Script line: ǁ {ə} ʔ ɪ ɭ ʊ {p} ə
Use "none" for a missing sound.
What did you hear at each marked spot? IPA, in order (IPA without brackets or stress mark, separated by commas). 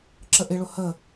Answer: ə, h